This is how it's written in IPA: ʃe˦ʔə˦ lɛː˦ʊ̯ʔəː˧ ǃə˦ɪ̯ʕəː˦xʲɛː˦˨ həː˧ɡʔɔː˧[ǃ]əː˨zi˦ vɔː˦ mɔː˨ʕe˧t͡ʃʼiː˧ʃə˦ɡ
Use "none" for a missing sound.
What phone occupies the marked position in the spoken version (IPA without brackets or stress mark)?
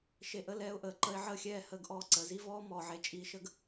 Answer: ǀ